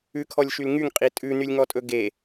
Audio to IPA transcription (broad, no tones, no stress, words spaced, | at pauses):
ʉkʰɔlʲʃyl ŋyŋqʼi tʼʉ nylʲŋɔtʼɵɡe